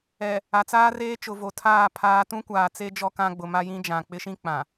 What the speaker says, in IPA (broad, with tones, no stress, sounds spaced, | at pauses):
ɛ˨ | a˨ t͡s aː˦ r eː˦ t͡ʃ ʊ˨ v o˨ tʰ aː˦˨ pʰ aː˨˦ t ũ˦ kʷ aː˨ t͡s e˦ d͡ʒ ɔ˦ k ã˦ ɡ͡b ʊ˨ m a˦ j ĩ˦ d͡ʒ ã˨ k͡p ɪ˦ ʃ ĩ˦ k͡p ã˨